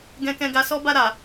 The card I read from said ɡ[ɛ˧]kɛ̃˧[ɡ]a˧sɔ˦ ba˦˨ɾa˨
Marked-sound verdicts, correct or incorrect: incorrect: ɛ̃˧, correct

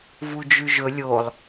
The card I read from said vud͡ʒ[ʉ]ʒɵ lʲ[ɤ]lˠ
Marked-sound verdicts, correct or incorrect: correct, incorrect: o

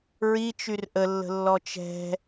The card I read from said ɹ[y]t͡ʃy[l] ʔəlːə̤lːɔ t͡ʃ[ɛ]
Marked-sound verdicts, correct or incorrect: incorrect: i, incorrect: r, incorrect: ɛ̤

